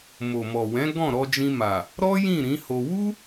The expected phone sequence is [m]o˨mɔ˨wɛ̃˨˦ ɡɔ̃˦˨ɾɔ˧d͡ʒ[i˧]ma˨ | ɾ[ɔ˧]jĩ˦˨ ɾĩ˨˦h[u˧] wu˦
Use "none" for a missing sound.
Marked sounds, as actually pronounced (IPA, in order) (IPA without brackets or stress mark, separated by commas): m, ĩ˧, ɔ˦, o˧